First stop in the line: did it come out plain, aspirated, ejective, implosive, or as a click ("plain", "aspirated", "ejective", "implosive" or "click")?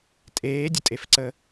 ejective